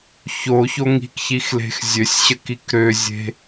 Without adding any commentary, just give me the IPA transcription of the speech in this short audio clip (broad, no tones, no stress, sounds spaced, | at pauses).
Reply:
ç o ç o ŋ i̤ k ç i x l e̤ x zʲ ø sʲ ɕ ə k i k ɾ ø zʲ e̤